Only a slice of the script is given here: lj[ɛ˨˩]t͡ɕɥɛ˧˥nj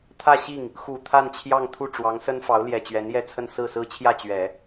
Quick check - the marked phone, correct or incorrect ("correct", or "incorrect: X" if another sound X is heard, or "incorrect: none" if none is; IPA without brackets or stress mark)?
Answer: correct